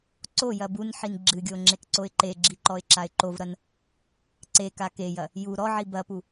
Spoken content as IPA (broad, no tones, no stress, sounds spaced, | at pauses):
ǀ o j ɐ b u n ħ i n ɡ͡ǁ ɨ ɡʲ o ŋ͡ǁ e k ǀ o ɪ̯ ǃ e ɡ͡ǁ i ǃ ɔ ɪ̯ ǁ a ɪ̯ ǃ o v ɾ ɐ n | ǀ e k a k e j ɐ | j u ɾ ɔ ʕ i b ɐ p u